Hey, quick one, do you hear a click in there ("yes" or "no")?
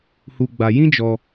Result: no